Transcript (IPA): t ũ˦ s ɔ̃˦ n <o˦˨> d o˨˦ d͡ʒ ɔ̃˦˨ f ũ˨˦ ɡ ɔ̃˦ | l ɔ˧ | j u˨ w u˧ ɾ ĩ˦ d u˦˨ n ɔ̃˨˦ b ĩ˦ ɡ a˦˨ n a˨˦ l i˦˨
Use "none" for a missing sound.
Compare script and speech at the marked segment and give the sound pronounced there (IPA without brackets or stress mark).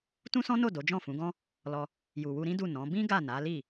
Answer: o˦˨